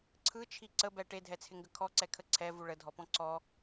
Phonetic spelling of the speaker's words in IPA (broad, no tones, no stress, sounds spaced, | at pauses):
ǀʰ ɯ t͡ʃʰ i ǀ ə b ɛ ʈ e dʱ ɛ t͡sʰ ɪ ŋ ɡ ə kʰ ɔ ǀ ɛ kʰ ə ǀʰ ɛ v u ɭ ə dʱ ɔ p ɔ̃ ǀ ɔ